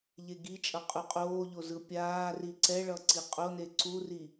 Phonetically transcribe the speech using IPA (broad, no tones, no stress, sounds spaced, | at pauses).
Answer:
ʎ e ɡ i t͡ʃʼ ʌ qʼ u qʼ oː ʎ o z ɯ pʲ aː r i ǀ ɛ ɭ ʌ ǀ i qʼ o n e ǀ u r i